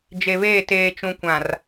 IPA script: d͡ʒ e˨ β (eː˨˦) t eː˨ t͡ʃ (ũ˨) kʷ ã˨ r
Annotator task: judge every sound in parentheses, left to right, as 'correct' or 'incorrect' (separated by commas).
incorrect, correct